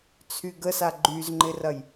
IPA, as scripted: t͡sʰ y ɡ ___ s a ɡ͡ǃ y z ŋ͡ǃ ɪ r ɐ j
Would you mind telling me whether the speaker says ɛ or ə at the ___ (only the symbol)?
ə